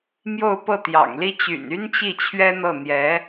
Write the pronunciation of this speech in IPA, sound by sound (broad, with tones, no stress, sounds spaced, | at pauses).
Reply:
m j o˥˧ ʊ̯ p ɤ˥˩ t̪ j ɑ̰˨˩ ŋ l i˥ t͡ɕ y̰˨˩ n y˥ n t͡ɕ i˥˩ t͡ɕʰ ɥ ɛ˥ n̪ ɤ˥˩ n̪ j ɛ˧˥